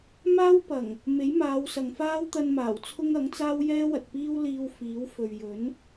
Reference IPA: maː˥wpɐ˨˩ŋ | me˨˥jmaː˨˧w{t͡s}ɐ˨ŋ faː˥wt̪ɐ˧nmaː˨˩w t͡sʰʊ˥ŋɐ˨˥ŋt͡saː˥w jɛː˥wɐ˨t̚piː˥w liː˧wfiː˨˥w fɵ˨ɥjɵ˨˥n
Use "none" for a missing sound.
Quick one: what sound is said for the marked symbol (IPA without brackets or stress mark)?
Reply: s